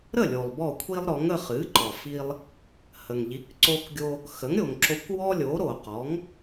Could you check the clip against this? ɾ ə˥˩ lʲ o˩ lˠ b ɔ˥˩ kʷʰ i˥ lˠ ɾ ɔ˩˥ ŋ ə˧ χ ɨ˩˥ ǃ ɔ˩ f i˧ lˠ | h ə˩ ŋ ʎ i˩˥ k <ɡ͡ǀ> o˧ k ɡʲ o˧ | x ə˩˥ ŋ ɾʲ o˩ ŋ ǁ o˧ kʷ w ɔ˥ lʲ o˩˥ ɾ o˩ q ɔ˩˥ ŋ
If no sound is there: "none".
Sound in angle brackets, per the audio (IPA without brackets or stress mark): ǀ